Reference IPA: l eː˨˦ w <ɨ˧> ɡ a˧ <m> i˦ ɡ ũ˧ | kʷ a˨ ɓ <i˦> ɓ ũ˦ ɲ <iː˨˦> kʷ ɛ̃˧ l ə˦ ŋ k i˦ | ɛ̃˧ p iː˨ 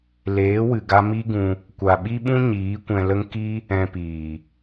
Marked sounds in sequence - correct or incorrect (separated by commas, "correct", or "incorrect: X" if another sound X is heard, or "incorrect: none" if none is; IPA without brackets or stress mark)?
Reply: incorrect: ɨ˨, correct, correct, correct